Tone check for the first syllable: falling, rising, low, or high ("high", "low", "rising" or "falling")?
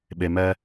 low